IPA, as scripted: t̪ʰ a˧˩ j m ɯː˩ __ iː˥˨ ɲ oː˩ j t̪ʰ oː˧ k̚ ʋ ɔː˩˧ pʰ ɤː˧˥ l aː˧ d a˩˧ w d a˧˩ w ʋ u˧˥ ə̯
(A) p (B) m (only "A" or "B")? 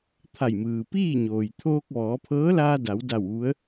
A